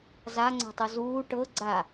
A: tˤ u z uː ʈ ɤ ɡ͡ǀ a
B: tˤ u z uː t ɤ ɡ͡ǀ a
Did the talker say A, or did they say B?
A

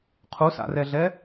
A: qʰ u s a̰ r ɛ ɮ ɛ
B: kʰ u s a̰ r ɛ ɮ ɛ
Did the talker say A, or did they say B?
A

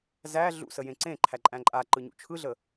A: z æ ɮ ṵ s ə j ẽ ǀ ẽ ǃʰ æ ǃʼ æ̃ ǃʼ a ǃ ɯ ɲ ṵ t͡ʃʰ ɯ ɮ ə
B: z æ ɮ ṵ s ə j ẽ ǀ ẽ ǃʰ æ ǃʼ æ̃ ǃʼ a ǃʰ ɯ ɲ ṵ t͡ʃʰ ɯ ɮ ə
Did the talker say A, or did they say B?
A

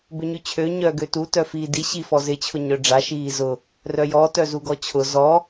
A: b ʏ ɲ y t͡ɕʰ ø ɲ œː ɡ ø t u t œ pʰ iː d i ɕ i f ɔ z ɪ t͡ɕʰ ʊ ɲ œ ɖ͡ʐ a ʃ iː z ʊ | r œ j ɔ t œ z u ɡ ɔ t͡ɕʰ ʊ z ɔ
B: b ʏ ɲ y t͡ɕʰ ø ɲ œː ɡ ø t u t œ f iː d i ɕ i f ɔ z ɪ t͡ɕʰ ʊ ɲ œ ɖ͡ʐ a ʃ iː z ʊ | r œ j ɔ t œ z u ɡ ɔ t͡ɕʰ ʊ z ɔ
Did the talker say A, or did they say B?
B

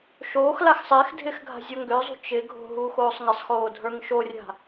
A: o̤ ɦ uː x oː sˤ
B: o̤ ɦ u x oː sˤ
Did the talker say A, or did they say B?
A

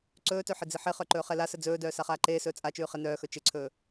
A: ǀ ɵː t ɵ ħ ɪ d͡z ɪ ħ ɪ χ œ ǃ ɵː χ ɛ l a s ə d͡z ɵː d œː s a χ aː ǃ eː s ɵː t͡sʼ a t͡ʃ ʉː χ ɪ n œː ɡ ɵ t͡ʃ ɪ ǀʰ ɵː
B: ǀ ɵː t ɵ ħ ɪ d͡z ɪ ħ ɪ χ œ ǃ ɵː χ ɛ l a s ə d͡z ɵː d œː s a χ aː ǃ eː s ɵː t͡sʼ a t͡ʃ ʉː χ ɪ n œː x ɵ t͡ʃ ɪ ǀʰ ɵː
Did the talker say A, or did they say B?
B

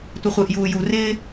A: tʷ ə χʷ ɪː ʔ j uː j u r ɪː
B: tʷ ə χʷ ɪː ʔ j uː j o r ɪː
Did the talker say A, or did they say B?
A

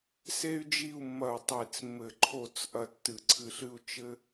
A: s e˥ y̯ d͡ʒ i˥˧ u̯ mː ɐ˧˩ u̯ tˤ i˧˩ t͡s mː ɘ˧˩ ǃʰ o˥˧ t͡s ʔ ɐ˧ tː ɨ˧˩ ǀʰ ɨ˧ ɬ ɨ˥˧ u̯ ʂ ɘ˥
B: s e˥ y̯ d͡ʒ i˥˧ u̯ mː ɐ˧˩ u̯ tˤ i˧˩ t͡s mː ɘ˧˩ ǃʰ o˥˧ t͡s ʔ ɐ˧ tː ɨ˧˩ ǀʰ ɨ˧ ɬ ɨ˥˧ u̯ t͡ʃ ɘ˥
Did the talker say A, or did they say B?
B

